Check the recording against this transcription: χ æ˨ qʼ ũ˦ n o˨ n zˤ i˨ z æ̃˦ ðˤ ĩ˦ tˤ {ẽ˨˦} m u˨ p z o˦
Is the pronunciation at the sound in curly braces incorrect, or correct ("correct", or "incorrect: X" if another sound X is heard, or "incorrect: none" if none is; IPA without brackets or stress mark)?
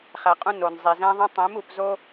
correct